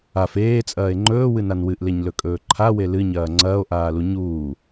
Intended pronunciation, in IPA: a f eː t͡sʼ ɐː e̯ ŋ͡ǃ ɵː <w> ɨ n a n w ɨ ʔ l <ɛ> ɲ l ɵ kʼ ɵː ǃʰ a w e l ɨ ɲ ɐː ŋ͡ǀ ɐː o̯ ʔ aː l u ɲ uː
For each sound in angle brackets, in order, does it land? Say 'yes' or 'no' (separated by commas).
yes, no